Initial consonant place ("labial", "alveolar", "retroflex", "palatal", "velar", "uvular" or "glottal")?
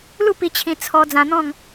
alveolar